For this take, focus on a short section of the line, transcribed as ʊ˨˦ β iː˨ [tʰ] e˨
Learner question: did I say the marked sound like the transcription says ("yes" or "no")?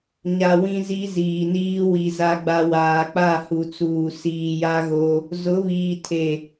yes